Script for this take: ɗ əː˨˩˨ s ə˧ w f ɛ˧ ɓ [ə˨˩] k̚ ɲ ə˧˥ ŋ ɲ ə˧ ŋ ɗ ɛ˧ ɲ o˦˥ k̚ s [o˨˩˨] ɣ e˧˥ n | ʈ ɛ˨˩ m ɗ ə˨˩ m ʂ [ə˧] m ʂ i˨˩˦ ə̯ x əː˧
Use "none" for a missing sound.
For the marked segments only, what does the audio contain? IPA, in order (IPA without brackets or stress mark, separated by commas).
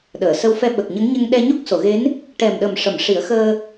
ə˨˩, o˨˩˨, ə˨˩˨